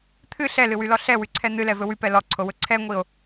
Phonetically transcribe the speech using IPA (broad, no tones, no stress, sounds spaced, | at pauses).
t̪ʰ ɨ ɬ ɛ l ɨ w y l ɔ ɬ ɛ w y ǀʰ ɛ n̪ ɨ l ɛ v ɵ w y p ɛ l ɔ ǀʰ o w ɵ ǀʰ ɛ ŋʷ i o̯